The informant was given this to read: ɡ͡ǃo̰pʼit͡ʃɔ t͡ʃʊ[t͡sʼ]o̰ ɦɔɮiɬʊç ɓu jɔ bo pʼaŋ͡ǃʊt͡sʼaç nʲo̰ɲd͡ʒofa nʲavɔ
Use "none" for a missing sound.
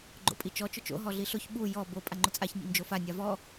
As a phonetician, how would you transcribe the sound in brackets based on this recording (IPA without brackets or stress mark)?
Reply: t͡ʃ